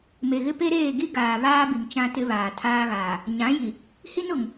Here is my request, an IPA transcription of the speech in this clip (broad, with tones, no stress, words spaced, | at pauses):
me˨ɣɪ˦pe˦ɾeː˦˨ ɡi˦ɡaː˨ βaː˦bi˨ŋ t͡ʃã˦tɪ˦βaː˨ tʰaː˦ɣaː˨ | ɲã˨˦ji˨ | hi˦nʊ˨ŋ